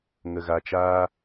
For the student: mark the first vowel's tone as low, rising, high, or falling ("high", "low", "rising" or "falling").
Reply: low